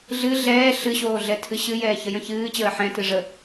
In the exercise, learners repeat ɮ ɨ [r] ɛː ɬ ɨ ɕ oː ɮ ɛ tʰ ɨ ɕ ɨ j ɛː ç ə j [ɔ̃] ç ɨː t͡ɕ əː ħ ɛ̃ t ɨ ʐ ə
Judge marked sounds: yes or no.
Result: no, no

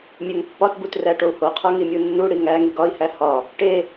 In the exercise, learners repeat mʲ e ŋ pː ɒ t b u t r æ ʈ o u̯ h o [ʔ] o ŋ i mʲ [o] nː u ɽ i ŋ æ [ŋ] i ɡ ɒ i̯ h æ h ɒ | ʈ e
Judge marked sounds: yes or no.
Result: no, no, yes

